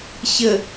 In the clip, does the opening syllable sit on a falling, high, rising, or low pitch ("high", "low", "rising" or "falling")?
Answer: low